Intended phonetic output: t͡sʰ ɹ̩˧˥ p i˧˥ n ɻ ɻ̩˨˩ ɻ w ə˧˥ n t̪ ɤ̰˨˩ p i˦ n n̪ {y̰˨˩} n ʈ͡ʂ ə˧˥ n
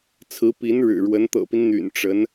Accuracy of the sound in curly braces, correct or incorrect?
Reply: correct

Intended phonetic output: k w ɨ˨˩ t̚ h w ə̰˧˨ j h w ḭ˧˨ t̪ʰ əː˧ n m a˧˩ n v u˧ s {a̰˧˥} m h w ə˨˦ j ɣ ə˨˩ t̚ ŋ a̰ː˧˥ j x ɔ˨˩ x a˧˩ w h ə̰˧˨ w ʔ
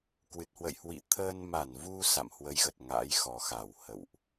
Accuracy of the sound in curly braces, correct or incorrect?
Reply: incorrect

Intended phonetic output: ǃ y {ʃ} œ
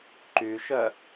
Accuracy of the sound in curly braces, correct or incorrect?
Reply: correct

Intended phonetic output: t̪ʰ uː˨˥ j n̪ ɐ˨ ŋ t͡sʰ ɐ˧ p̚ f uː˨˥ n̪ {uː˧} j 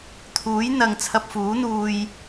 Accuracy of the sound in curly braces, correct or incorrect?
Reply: correct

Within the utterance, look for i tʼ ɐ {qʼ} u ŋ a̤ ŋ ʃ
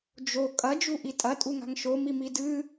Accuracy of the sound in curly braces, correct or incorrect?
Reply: incorrect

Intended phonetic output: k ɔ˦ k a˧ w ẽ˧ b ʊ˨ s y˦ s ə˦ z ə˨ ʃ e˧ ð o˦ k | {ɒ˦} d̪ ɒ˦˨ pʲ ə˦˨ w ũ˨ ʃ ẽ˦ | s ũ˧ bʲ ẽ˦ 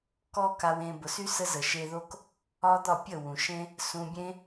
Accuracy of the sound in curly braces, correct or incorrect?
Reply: correct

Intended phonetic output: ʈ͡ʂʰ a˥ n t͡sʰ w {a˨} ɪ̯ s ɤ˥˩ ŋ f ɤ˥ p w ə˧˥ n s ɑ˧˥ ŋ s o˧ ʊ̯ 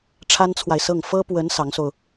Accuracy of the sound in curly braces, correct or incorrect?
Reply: correct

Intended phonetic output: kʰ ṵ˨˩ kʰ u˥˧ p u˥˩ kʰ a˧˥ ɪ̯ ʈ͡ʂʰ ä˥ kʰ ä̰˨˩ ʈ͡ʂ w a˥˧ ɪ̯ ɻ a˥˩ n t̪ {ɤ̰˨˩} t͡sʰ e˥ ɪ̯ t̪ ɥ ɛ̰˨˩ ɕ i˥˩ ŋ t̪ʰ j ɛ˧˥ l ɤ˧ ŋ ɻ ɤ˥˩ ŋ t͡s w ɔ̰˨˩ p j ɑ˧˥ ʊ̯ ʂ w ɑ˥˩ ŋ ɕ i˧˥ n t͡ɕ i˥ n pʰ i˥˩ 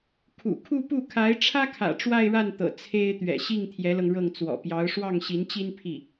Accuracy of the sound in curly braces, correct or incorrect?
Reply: correct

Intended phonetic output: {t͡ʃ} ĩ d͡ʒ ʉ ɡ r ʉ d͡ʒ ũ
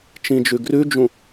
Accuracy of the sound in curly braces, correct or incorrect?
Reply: correct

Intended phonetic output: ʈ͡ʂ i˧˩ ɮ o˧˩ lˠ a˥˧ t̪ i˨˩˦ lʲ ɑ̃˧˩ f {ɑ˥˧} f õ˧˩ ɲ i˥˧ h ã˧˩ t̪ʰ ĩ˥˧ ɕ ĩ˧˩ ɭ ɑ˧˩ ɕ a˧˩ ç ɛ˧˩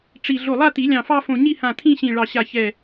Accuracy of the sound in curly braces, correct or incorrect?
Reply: correct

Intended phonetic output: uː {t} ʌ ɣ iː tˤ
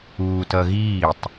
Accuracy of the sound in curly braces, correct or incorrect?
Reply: correct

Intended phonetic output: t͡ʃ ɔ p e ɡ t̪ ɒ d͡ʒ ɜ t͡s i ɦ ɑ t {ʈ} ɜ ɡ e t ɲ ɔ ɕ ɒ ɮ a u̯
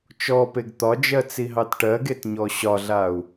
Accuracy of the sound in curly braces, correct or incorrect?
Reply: correct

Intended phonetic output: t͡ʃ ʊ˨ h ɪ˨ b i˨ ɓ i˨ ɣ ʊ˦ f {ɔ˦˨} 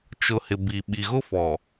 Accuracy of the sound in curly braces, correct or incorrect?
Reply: incorrect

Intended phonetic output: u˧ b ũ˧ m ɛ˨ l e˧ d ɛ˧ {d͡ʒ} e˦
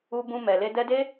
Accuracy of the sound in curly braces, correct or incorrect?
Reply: incorrect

